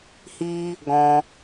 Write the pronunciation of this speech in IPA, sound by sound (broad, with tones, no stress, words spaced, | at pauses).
hi˦ | ɡɔ̃˧